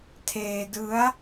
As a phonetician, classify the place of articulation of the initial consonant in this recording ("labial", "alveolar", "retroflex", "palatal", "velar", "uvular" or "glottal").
alveolar